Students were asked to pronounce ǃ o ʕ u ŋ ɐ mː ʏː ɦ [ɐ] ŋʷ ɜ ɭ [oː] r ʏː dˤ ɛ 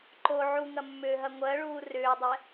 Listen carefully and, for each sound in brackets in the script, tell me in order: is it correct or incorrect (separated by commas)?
correct, incorrect